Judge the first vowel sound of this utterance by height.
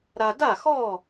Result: low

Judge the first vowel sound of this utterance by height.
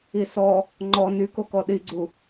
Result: high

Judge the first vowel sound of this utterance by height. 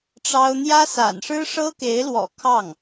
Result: low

